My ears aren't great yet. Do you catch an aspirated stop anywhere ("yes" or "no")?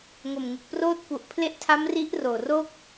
yes